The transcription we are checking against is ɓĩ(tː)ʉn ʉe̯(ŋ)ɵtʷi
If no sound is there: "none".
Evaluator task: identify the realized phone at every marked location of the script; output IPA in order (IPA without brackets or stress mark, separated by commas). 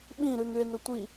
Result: ɾ, n